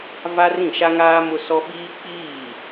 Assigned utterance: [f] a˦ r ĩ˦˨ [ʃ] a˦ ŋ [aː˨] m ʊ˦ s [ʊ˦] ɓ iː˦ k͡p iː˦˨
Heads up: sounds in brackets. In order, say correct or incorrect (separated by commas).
incorrect, correct, incorrect, incorrect